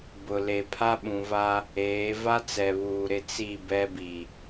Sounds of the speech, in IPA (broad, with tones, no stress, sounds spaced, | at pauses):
b ʊ˨ l e˨ pʰ a˦ ɓ ũ˨ v a˦ | eː˨˦ v a˦ t͡s ɛ˨ β uː˨ ɾ ɪ˦ t͡s i˦˨ b ɛ˦ b i˨